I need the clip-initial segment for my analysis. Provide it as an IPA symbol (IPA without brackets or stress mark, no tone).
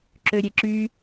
ǁ